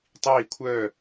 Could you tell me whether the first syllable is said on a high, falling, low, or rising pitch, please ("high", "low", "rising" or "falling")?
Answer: falling